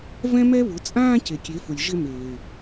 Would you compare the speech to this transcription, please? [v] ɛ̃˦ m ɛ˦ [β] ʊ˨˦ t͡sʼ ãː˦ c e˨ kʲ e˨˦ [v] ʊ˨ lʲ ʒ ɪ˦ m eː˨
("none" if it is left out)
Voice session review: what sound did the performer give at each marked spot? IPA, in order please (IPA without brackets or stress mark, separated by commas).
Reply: v, β, f